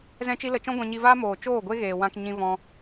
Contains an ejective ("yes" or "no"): no